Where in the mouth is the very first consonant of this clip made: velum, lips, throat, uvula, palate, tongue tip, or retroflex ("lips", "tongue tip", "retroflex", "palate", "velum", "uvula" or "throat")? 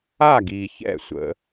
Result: velum